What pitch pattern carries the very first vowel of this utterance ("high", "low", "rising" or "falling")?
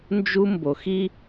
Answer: high